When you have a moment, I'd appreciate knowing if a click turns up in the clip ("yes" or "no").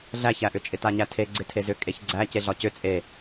yes